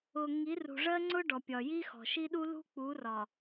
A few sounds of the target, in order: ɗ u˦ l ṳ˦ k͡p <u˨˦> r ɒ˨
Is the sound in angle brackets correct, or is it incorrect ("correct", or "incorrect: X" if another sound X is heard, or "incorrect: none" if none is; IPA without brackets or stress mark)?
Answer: correct